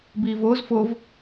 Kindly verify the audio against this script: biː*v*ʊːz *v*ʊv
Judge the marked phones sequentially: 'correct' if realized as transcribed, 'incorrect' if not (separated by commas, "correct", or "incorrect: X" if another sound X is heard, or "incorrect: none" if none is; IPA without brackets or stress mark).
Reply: correct, incorrect: f